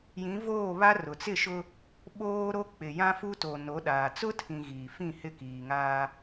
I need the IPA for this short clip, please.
j ĩ˨˦ v oː˦˨ β a˦ r ʊ˨ t͡s ɪ˦˨ ʃ ʊ˦ | ɓ oː˦ ɾ o˦ k͡p ɪ˨ j ã˦ f u˦ t o˨ n o˨˦ ɗ aː˨ t͡s ʊ˦ tʰ ĩ˨ ɣ iː˨ f ĩ˦˨ h ɪ˦˨ k iː˨ ŋ aː˦

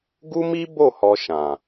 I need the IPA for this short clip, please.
ɡ u˦ m i˦ b o˦˨ h ɔ˦ ʃ ã˨

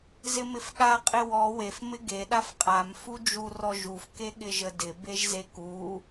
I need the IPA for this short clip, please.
z ɪ m ɪ f ɠ a qʼ ɪ w ɔ w e f m ɪ ɡ e ɗ a f qʼ a m f u d͡ʒ u r ɔ ʒ u f k e ɠ ɪ ʒ ə d ɪ b e ʒ z e k u

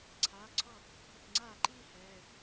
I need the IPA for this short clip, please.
ǀʰ aː˩˧˩ ǀʰ ɔ˥˩ | ɦ ʊ˧˩ k ŋ͡ǀ aː˥˩ ǃ iː˥˧ h ɛː˩˧˩

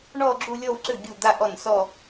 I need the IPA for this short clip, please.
ɳ ɔ˥˧ ɡ͡ǁ u˥˧ lʲ ɔ˥˧ w ǀ ʏ˥˩ ɡʲ u˥˩ d̪ a˥˧ ʔ ɔ˥˩ n s ɔ˥˧

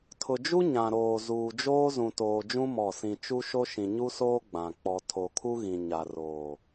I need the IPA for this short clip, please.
tʰ ʊ˨ d͡ʒ u˦ ɲ ã˨ ɾ oː˨ z uː˨ d͡ʒ oː˦ z ũ˨ t oː˨ d͡ʒ ũ˦ m ɔ˦˨ s ĩ˦ t͡ʃ u˦ ʃ o˦ ʃ ĩ˨ ɲ u˦ s oː˦ ɡ͡b ã˨ k͡p ɔ˨ tʰ o˨ kʰ u˦ ɣ ĩ˨ ɲ a˨ r oː˨

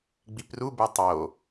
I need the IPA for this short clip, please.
ɡ͡b i p r u b e tˤ o

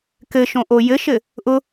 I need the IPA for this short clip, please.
k ɘ ʃ õ ʔ o j ɘ ʃ ɘ | ʔ ʊ

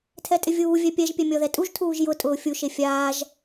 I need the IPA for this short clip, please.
tʰ ɛ tʼ ɪ vʲ uː vʲ ɛ pʲ ɛ ʒ pʲ ɛ mʲ ɔ ð ɛ tʼ u ʒ tʰ uː ʒ j ʊ tʼ ʊː fʲ u ʃ e fʲ aː ʒ

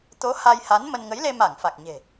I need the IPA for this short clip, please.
t̪ o˨˦ h a˧ j h a˨˦ n m ə˧ n ŋ ə˨˦ j l e˧ m a˧˩ ŋ f a˨˩ k̚ ɲ e̤˨˩

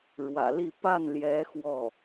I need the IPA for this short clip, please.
ɻ w ä̰˨˩ l i˥˧ p a˥˩ n l j ɛ˧˥ x w ɔ˥˩

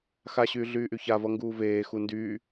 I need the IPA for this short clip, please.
x a ɕ yː ɮ yː ʔ y ç a v ʌ ŋ ɡ uː v eː x u n d yː

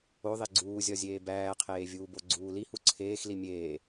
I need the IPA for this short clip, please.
o ðˤ e ɡ͡ǀ uː zʲ ɒ zʲ eː b æː qʰ eː vʲ uː b o ɡ͡ǀ uː l i h u ǀʰ eː x l i mʲ eː

